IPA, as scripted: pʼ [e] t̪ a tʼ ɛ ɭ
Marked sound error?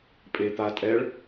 no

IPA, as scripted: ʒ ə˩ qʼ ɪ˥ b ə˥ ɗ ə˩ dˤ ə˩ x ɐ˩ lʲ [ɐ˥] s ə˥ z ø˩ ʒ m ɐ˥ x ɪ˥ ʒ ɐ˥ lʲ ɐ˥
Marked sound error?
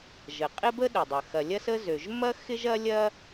no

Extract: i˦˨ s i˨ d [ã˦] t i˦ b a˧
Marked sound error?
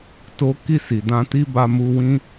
yes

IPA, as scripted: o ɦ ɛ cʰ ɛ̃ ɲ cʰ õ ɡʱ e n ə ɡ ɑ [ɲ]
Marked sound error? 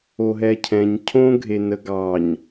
no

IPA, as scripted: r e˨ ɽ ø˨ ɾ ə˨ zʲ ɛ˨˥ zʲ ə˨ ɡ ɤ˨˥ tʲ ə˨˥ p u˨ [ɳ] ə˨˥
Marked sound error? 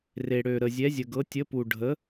yes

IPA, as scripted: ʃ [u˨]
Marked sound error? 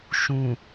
yes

